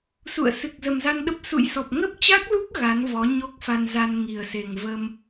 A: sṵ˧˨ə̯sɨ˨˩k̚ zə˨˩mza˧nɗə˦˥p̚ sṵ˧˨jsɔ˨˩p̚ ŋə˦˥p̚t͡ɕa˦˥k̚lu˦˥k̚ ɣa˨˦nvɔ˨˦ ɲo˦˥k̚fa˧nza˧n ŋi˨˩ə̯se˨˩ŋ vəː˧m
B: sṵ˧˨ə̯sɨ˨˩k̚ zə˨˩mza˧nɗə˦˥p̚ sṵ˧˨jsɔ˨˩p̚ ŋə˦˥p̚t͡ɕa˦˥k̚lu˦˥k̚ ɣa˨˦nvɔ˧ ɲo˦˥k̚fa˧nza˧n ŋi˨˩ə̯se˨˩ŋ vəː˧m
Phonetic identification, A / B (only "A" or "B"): A